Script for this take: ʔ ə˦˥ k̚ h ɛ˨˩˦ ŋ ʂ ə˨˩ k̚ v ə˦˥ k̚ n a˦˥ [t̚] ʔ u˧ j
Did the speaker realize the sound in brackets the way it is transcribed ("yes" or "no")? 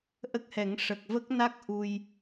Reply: no